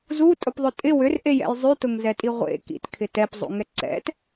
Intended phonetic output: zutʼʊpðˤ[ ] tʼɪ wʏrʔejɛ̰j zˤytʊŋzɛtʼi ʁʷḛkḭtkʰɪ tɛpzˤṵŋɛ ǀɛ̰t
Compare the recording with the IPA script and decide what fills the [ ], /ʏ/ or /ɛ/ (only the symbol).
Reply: ʏ